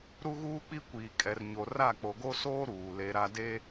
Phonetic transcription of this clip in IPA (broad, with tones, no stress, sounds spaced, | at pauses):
ɾ u˦ ɣ uː˦ k͡p i˦ kʷ iː˨ kʼ ɛ˨ r ɲ o˨ r a˦˨ k͡p o˨ ɡ o˦ s oː˦ ɾ uː˨ l e˦ ɾ a˦ d e˦